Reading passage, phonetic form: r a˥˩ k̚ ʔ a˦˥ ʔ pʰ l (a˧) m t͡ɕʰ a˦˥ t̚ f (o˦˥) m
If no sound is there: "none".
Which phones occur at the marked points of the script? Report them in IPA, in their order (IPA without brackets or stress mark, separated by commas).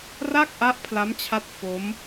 a˦˥, o˦˥